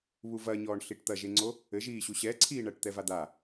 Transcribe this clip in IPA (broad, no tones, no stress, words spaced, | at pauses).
βuvɐɲɔːɳ ɬiʈt̪ɐʒeŋ͡ǀo | ɘʒiːɕu ɕɛǀʰiːɳɐːʈ t̪ɛvad̪a